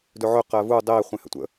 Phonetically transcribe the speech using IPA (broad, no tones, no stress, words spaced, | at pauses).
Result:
dɵʕɵ qɜvu dˤe χʷẽhə̰tʷə̰